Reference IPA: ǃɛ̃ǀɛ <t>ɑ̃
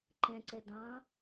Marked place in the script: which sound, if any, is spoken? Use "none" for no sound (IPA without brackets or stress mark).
d